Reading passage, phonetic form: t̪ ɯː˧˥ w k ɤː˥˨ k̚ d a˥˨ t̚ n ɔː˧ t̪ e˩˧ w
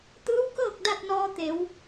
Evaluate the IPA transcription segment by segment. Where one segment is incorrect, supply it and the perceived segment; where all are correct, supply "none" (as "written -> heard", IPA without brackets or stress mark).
none